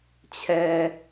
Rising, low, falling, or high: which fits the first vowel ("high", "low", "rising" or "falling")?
low